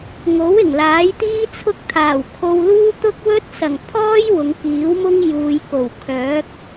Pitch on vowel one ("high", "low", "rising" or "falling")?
rising